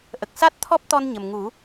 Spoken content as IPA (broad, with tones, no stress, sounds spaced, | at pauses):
ʔ ə˨˩ k̚ s a˦˥ t̚ t̪ʰ ɔ˦˥ p̚ t̪ ɔ˧ n ɲ ə˨˩ m ŋ u˨˩˦